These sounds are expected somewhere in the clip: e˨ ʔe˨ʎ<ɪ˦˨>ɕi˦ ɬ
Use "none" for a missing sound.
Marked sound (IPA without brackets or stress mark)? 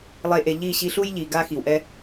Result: i˦˨